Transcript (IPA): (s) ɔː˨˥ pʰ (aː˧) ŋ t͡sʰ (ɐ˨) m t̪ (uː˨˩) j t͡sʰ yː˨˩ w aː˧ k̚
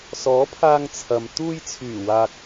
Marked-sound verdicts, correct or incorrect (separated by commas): correct, correct, correct, incorrect